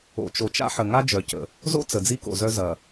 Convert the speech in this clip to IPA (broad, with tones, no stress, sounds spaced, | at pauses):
o̰˨ t͡ʃ o˨ t͡ʃ a̰˦ ħ ə˨ ŋ a˦ d͡ʒ œ˨ c ə̰˨ | z o̰˦ t͡s ə˨ d͡z i˦ k o̰˨ z œ˦ z ɐ˨